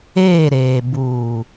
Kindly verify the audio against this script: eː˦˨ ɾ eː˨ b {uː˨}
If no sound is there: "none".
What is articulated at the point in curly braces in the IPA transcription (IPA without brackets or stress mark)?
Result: uː˨